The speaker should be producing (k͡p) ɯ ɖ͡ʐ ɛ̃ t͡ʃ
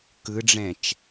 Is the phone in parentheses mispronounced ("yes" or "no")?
yes